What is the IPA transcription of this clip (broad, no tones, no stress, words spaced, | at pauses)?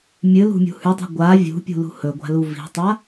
mʲɨlṳmʲṳ hʉdˤi̤ ɡʷa vʲṳpʲṳlṳ hɵɡʷa̤lu vi̤tˤa